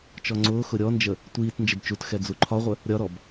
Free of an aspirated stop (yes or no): no